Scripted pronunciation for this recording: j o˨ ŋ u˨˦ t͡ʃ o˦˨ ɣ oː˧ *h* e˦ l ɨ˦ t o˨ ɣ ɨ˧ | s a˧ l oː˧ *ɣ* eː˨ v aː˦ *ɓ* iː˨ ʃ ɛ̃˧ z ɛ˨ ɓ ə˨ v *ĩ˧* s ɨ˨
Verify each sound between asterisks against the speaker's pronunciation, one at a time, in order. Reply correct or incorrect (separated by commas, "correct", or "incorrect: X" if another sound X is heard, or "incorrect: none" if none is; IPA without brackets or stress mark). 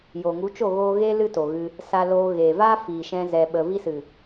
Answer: incorrect: ɣ, correct, incorrect: f, incorrect: i˧